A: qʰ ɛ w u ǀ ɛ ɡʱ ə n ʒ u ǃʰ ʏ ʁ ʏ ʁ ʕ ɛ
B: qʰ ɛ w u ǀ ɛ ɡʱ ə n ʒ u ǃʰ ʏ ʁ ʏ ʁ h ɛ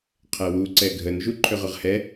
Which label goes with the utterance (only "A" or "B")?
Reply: B